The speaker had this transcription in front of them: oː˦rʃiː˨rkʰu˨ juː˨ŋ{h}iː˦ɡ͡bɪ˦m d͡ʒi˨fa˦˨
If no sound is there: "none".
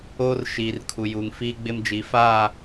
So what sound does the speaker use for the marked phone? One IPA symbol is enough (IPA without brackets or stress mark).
f